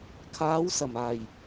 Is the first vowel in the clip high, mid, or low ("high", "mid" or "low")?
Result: low